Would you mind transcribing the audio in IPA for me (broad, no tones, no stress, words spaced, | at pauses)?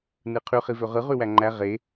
nɯqʰy χivøʁɯ ʁywæŋ͡ǃæ ʁe